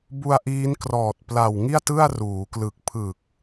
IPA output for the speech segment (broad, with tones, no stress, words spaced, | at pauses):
bu˧a̯ʔiː˦˥nkrɔː˨˩t̚ pla˨˩wŋi˥˩a̯tɯ˥˩a̯ ruː˩˦klɯ˨˩k̚ pʰɯ˨˩k̚